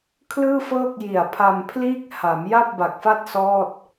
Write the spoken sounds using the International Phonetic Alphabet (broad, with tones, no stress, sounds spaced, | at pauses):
kʰ l ɯː˥˩ f ɤː˥˩ k̚ j i˨˩ a̯ pʰ a˧ m pʰ l iː˥˩ k̚ h a˩˦ m j a˥˩ p̚ b a˨˩ k̚ f a˥˩ t̚ s ɔː˥˩ t̚